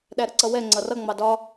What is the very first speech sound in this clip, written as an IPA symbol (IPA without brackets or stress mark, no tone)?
ɗ